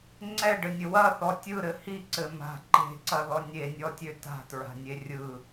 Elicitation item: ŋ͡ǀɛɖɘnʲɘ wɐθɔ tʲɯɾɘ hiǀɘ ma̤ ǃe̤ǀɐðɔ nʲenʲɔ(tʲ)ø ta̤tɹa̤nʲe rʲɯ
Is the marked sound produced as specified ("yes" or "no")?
yes